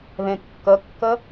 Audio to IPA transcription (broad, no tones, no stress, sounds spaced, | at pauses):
ð ẽ kː ə kː ə